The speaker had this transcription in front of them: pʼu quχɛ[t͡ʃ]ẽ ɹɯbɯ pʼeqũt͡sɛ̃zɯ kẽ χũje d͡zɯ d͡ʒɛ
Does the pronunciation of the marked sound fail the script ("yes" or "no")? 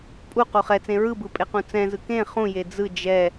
yes